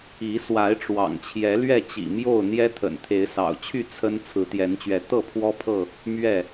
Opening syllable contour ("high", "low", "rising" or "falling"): rising